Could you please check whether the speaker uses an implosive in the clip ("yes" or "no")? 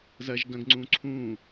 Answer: no